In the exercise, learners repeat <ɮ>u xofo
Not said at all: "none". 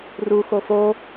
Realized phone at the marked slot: r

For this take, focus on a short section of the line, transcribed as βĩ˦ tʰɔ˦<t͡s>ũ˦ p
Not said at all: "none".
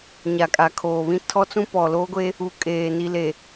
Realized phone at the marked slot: t͡s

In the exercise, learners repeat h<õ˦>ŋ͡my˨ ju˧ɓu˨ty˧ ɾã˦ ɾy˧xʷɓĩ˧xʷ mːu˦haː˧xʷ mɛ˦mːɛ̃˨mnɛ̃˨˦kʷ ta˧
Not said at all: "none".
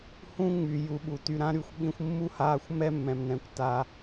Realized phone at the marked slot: ũ˦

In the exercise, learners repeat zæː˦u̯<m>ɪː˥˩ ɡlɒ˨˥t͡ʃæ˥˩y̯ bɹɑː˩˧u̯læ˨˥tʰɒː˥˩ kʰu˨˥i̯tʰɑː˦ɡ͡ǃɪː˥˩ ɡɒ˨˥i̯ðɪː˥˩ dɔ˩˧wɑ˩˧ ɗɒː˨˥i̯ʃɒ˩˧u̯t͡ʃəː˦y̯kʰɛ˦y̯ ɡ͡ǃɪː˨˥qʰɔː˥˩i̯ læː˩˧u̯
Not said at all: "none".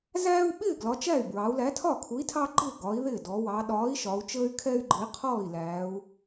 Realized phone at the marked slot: ɓ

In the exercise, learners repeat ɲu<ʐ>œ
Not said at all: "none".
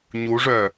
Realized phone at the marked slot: ʐ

